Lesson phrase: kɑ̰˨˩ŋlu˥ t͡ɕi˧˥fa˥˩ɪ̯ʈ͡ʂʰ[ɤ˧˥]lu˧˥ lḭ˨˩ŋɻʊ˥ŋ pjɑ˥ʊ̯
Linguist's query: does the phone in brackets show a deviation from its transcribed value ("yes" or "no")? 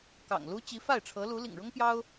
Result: no